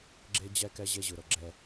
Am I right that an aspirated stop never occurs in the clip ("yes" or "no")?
yes